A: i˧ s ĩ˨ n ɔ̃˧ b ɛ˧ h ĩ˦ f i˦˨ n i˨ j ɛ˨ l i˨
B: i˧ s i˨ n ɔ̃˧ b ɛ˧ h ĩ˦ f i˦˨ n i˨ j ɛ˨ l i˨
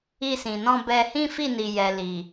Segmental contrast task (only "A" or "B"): A